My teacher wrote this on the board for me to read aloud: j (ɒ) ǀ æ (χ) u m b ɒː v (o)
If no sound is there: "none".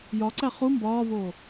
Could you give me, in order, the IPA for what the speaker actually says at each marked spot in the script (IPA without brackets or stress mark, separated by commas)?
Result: ɒ, χ, oː